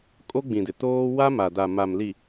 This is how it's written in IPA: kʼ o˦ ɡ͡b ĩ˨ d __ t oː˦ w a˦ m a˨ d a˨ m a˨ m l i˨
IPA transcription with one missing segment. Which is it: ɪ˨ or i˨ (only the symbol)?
ɪ˨